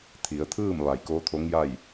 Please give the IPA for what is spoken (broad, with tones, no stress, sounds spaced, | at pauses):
t̪ʰ i˩˧ ə̯ t̪ʰ ɯː˥˨ m ʋ a˧˩ j k oː˧˥ t̪ʰ o˧˥ ŋ j a˥˨ j